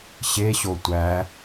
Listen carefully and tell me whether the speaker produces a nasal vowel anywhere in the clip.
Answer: no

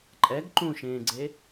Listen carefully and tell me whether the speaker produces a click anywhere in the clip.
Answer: yes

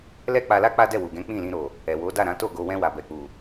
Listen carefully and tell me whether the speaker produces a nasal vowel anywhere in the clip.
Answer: yes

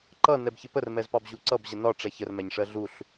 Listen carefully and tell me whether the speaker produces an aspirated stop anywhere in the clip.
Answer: no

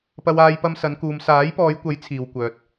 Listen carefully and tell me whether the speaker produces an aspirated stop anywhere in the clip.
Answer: yes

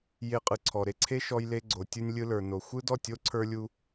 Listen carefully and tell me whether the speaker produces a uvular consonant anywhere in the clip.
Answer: yes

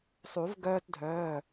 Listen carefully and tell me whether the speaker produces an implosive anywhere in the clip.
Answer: no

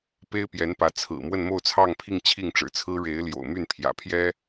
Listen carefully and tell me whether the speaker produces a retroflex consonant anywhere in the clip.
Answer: yes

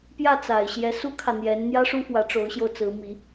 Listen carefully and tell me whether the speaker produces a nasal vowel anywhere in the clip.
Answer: no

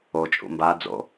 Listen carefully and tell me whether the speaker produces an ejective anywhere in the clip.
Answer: yes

